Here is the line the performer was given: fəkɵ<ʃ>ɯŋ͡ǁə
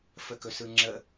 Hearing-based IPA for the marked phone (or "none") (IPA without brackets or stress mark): s